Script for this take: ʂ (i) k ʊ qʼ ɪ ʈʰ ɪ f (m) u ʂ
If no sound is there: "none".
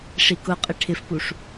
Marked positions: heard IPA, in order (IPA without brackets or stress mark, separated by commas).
i, p